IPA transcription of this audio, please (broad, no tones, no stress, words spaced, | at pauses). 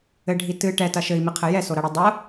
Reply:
ɘɖʱi tɨ ʈɛtɐ ʃɘi̯miqʰɘ jɛsoɾɐɽi dˤo